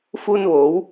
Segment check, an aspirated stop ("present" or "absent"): absent